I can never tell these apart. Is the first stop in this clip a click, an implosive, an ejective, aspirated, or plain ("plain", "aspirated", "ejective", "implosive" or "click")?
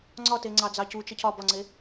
click